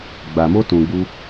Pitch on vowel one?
low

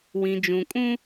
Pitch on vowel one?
low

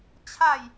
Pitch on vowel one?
falling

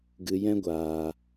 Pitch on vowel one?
low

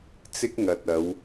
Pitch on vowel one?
high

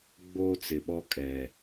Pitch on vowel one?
high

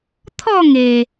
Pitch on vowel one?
falling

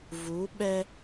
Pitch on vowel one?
rising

